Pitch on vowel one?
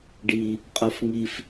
high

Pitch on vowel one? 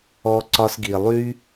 high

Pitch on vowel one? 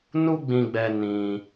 high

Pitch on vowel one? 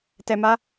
low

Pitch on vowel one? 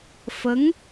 rising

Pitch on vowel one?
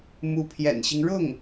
rising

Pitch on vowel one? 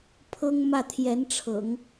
high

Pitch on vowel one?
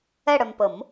falling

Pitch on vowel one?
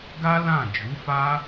high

